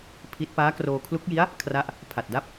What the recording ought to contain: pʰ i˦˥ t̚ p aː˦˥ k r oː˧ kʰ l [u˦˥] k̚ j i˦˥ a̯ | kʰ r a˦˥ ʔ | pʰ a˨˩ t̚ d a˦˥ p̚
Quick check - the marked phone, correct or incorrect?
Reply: correct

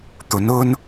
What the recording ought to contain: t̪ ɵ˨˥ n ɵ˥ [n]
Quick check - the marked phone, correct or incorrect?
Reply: correct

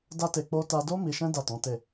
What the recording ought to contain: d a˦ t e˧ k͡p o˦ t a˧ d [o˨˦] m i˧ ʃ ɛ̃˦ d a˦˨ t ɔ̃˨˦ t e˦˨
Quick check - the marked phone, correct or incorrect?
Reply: incorrect: o˦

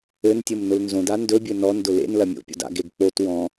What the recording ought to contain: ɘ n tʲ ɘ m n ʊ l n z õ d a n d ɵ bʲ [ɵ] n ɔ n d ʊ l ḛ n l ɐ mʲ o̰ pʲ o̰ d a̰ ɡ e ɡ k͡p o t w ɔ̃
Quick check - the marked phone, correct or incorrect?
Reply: correct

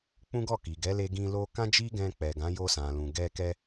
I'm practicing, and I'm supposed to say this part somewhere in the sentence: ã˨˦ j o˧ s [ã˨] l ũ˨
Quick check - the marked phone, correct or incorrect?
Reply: correct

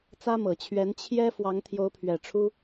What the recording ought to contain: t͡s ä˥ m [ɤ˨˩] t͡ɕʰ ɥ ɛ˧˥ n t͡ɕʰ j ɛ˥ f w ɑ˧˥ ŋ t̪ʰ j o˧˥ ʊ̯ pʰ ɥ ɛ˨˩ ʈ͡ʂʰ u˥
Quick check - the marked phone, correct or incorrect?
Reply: correct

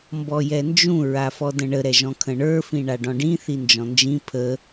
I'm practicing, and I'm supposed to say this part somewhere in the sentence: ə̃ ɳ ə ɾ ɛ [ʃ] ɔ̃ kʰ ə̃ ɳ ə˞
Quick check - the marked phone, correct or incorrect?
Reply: incorrect: ʒ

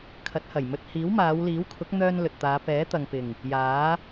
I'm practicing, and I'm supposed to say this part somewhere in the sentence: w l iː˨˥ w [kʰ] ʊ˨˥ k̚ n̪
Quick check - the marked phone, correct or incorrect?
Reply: correct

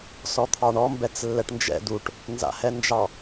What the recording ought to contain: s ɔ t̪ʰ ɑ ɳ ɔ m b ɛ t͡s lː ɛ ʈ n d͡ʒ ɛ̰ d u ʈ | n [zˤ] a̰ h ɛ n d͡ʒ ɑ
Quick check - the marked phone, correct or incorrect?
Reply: incorrect: z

